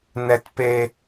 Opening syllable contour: low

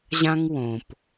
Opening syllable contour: high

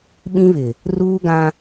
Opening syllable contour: high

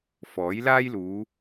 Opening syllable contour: rising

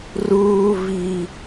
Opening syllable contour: high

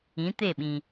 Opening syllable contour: rising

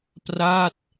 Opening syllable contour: falling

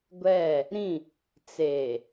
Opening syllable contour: falling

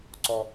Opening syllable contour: low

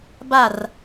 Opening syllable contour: falling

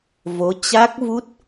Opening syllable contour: rising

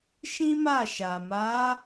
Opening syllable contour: high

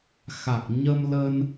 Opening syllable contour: low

